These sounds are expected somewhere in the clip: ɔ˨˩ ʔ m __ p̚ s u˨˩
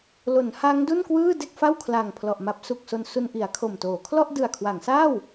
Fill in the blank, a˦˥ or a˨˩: a˦˥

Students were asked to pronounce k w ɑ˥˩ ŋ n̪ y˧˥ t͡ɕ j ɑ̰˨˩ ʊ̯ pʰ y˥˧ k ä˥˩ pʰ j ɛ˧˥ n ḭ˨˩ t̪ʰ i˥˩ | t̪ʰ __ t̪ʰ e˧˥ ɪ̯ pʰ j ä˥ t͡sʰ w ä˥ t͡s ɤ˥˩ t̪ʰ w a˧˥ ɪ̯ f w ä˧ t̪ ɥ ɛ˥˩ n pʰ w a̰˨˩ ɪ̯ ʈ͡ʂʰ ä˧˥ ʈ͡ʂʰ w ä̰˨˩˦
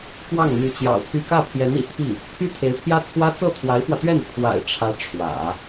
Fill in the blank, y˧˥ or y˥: y˥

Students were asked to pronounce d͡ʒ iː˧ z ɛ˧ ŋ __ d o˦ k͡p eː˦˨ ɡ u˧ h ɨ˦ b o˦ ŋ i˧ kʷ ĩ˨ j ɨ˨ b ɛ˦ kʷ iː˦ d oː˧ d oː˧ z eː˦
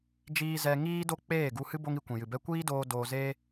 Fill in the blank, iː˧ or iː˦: iː˦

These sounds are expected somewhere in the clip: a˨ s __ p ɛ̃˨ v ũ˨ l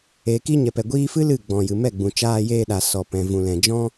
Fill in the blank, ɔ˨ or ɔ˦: ɔ˨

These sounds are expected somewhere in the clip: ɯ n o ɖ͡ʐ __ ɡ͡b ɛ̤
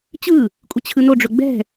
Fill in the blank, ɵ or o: ɵ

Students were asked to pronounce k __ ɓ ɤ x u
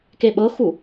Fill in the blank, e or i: e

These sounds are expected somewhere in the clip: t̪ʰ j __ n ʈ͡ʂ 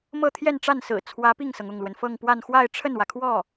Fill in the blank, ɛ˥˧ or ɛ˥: ɛ˥˧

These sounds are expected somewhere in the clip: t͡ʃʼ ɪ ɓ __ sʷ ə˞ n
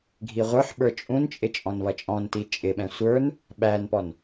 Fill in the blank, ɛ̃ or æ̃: ɛ̃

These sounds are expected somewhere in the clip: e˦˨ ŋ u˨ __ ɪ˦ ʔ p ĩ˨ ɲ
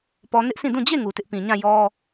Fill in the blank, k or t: t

